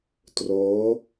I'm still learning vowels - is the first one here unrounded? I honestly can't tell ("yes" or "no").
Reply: no